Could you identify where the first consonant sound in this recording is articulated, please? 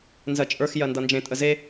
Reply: alveolar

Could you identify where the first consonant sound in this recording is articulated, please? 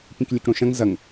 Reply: labial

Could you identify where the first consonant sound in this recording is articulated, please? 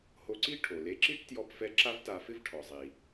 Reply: glottal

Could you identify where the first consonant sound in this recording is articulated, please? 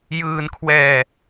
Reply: palatal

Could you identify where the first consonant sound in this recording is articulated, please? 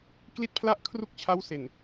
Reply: velar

